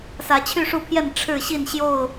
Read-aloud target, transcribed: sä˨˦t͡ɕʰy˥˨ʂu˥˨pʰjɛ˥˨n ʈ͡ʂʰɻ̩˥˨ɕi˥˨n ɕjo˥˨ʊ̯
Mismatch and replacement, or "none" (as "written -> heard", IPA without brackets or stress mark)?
none